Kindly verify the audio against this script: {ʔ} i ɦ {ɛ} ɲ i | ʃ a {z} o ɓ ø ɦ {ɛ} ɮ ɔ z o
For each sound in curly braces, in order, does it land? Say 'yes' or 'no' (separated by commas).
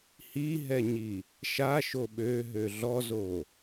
no, yes, no, no